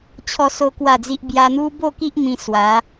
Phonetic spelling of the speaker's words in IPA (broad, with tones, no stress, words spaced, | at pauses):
t͡ɕʰɔ˦so˦kwa˥˧d͡zi˦ʔ bja˧n̪u˦ bo˥˧ki˦ʔ mĩ˧swa˨˦